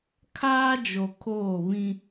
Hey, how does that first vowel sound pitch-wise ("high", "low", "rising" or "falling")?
high